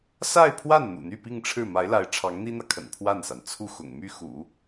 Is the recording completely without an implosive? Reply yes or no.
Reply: yes